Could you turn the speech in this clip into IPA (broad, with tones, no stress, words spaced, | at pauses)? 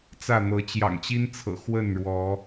t͡sä˥˨n̪ɤ˨˦ t͡ɕjɑ̰˨˩ŋt͡ɕi˦nt͡sʰɤ̰˨˩ xwə˥˨nɻwɔ˨˦